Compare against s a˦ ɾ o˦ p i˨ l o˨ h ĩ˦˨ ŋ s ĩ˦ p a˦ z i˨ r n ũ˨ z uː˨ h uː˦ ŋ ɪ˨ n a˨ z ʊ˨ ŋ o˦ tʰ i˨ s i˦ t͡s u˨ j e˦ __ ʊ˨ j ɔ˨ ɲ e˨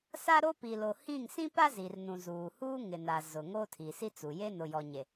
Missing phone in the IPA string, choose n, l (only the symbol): n